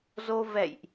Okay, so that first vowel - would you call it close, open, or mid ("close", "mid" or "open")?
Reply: mid